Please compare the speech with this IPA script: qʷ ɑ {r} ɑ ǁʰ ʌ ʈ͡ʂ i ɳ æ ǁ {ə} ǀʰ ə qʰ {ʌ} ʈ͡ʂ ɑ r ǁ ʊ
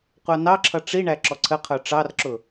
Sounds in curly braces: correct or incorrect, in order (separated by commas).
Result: incorrect, incorrect, incorrect